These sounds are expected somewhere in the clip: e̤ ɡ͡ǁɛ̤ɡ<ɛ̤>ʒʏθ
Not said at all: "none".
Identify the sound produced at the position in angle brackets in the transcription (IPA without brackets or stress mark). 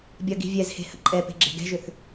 ɛ̤